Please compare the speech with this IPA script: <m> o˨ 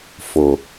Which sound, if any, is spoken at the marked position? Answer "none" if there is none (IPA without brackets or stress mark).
f